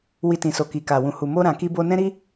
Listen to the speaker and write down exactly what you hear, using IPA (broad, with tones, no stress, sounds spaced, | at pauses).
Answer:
w i˧ t ĩ˨ s o˨ k i˨ k a˨ w ũ˨ h u˨ m o˧ ɾ ã˨ k i˧ b o˧ n ɛ̃˦ ɾ i˧